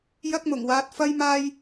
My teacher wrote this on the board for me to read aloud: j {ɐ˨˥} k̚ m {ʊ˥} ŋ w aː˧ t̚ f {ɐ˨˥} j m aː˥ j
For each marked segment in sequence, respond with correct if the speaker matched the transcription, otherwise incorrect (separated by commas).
incorrect, incorrect, incorrect